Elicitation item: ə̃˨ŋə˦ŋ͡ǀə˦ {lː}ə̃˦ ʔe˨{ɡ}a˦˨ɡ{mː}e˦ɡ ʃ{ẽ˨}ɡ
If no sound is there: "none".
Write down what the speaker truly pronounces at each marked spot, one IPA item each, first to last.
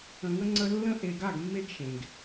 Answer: lː, ɡ, mː, ẽ˨

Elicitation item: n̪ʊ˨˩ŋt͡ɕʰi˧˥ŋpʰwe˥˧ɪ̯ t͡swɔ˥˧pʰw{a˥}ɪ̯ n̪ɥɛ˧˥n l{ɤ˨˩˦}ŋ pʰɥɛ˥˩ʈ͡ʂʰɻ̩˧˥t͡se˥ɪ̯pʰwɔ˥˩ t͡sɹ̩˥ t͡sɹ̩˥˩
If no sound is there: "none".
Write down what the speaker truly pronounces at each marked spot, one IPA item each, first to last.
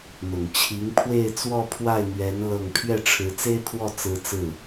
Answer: a˥˩, ɤ˥˧

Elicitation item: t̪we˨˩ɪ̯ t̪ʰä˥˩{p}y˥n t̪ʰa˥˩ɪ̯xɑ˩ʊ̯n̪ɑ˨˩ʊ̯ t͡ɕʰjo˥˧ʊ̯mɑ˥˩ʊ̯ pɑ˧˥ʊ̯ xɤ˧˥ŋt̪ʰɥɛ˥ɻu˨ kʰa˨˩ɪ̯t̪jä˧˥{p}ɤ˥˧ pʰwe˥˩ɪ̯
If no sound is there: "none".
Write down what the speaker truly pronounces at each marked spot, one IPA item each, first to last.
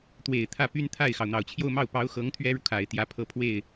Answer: p, pʰ

